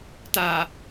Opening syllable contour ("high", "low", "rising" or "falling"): low